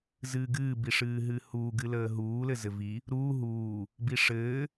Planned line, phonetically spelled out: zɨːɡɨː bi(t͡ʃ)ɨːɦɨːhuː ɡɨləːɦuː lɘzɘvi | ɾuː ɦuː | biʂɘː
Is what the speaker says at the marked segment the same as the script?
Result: no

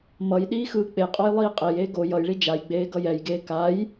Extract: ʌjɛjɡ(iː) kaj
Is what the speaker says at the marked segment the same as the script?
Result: no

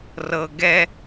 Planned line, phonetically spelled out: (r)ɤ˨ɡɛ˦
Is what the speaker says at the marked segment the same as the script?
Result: yes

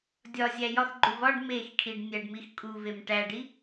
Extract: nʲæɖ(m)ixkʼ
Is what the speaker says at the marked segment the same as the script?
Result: yes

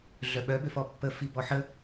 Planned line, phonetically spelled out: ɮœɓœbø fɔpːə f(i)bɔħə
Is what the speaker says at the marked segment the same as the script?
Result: yes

